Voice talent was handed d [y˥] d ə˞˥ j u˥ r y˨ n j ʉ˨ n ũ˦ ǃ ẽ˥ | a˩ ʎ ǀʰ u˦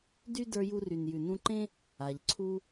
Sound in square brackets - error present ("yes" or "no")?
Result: no